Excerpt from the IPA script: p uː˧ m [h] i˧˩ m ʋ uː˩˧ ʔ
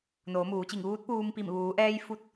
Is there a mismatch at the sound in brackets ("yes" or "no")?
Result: yes